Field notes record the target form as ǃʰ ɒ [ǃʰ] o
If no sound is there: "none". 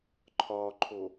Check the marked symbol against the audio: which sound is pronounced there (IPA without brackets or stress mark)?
ǃʰ